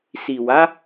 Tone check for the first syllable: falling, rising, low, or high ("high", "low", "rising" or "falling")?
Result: low